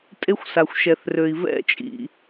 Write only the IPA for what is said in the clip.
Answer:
tʼ e˦ xʷ s a˨ xʷ ʃ ɛ˨ θ r ø˨ i̯ v ɛ̰˦˨ t͡ʃʼ ḭ˨

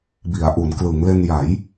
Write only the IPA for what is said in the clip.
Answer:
b i˩˦ a̯ ʔ u˩˦ n k l ɯ˩˦ ŋ l e˧ n j a˩˦ j

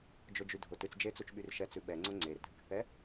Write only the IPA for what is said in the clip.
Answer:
d͡ʒ ʊ d͡ʒ y dʱ ʊ t ɨ t͡s d͡ʒ e t͡s u t͡ʃ ɓ y r ʃ ɛ t͡s ʉ ɓ ɛ ŋ͡ǀ ʊ ŋ͡ǀ e r dʱ ɨ k θ ɛ

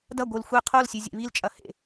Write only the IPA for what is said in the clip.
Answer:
d ɐ ɡʷ ɨ l xʷ e qʰ o l sʲ ʉ zʲ ḛ β i l t͡ʃʼ ɐ h ḛ

